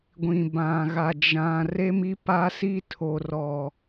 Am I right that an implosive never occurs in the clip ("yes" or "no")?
yes